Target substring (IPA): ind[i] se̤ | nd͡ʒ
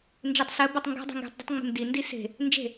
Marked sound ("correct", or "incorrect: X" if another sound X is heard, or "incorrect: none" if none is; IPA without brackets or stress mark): correct